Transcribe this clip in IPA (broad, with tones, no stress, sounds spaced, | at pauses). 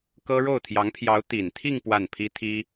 k ɤ˥ ɻ o˥˩ ʊ̯ t̪ʰ j ɑ˧˥ ŋ pʰ j ɑ˧˥ ʊ̯ t̪ i˨˩ n t̪ʰ i˥˧ ŋ p w a˥˩ n pʰ i˥ t̪ʰ i˥